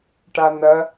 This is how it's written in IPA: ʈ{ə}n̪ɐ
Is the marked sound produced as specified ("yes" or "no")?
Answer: no